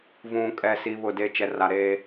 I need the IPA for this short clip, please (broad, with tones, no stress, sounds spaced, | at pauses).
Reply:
v ũ˨ kʼ ɛ˨ s i˨ β ʊ˦˨ d e˦ t͡ʃ ɛ˨ r a˨ ɾ eː˦